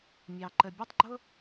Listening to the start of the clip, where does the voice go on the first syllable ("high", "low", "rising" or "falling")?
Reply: low